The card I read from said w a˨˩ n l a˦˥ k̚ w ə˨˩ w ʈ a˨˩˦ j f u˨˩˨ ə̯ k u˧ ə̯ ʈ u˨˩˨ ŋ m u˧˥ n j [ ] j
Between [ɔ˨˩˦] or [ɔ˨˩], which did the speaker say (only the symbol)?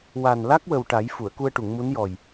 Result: ɔ˨˩